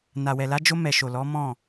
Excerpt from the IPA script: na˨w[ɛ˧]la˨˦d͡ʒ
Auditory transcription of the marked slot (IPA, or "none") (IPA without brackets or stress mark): ɛ˨